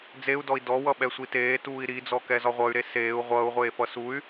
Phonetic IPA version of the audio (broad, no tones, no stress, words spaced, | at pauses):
d͡zeu̯dɔi̯ dɔwʌɓɛ sʷiteː tuːi̯ɾid͡zɔkɛ zɒʁʷʌy̯ɾe seːu̯ ʁʷʌːu̯ʁʷeː fʌsuy̯